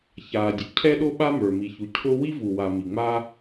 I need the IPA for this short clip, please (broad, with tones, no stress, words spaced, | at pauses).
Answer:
çaː˩dʲʊ˩ cʰɛ˥ɗo˥ ɓa˥ mə˞˩ mi˩çu˩ cʰʊ˥ wi˥vu˩wa˩ mi˩ŋ͡ma˥